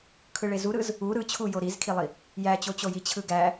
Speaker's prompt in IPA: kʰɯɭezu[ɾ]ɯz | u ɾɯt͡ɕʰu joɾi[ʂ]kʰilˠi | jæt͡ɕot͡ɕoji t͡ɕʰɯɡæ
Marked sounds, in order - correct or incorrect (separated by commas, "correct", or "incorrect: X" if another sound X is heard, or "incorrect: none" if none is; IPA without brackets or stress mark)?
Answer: correct, incorrect: z